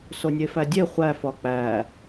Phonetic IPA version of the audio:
s o nʲ e f æ dʲ e χʷ æ f ɒ k͡p æ

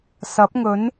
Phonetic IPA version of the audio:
s ɐ˨˥ p̚ ŋ ɵ˨˥ n

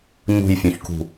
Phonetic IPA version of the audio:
ɲ ṳ j fʲ õ ç k ṳ

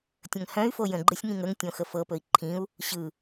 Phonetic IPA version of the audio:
tʲ ə̃ ŋ h œ̃ y̯ f o j ə̃ ɡ͡ǃ ɯ sʲ ŋ ĩ ŋ ə ŋ tʲ õ x ə f ɤ p ɵ i̯ ǃʰ ĩ u̯ | ɕ ɯ

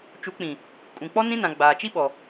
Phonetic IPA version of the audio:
t͡ʃ u˨˦ k͡p ĩ˨ | kʼ ũ˨ k͡p ɔ˦ n ĩ˦ n ã˨ ɡ͡b aː˨ t͡ʃ i˦ ɓ ɔ˨

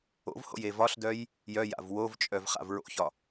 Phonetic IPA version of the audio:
o̰ v h o̰ j e v ɒ ɬ d œ j | j œ j a̰ v w o v t͡ʃʼ œ v χ a̰ v ɹ o̰ ç ɒ

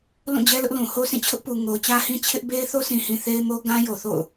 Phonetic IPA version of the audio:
l ũ˦˨ d͡ʑ ɛ˦ l ʊ˦ ʔ l ũ˨ h o˦ s ĩ˦˨ t͡ɕʰ ʊ˦ ʔ p u˨ ŋ o˨ ʊ̯ t͡ɕ ä˦ h ĩ˦ t͡ɕʰ ɪ˦ ʔ b e˦ ɪ̯ θ o˦ sʰ ĩ˨ h ĩ˨ θ e˦ ɪ̯ m o˦ ɡ ã˦ j o˨ θ o̰˦˨ ʊ̯

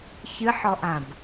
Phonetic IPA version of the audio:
ç ɨ ħ ɔ ʔ ã b

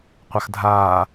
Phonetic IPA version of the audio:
qʷ a x dʱ aː

